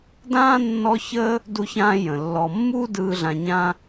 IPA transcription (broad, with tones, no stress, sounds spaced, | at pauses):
d ãː˥ nː ɔ˦ ç əː˥ | d u˦ ç ãː˦ j ə̃˩ lː ɔ˨ mː uː˥ d ɯː˨ ɮ ã˨ ɲ ã˦